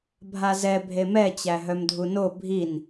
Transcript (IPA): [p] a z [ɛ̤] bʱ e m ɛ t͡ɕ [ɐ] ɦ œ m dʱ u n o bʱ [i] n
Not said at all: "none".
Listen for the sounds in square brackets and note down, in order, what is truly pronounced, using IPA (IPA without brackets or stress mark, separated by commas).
bʱ, ɛ, æ, i